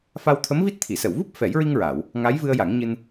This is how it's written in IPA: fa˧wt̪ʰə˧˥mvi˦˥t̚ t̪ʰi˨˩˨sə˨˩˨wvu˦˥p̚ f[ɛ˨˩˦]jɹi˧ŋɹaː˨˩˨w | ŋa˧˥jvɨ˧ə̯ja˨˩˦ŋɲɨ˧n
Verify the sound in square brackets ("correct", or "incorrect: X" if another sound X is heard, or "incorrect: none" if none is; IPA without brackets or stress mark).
correct